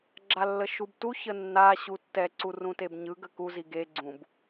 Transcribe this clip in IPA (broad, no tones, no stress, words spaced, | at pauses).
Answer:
ɡ͡ǁalːəʃubtu çənːa ɕutːɛ ǀurũtebɲɯ ɡəku ziɡe ɡ͡ǀũb